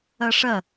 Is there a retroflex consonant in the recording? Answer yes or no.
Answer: yes